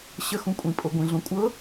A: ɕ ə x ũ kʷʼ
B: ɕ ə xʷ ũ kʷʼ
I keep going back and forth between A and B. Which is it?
A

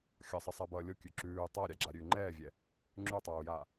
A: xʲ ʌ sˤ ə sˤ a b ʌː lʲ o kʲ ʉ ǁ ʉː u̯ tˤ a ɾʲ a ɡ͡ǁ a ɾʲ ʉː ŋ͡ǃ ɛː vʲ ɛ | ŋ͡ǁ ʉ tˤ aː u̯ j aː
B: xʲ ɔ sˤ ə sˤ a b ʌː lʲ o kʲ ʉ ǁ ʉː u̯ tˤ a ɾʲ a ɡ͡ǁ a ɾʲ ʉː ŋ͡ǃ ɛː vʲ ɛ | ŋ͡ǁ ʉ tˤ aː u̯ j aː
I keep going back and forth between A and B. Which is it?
A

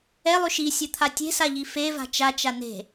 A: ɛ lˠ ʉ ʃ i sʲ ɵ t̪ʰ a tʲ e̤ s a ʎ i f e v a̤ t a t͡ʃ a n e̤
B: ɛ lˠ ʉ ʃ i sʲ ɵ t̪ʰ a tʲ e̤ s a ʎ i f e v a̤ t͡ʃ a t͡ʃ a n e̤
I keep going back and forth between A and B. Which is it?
B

